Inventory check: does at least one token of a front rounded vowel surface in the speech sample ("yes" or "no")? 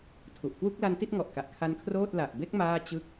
no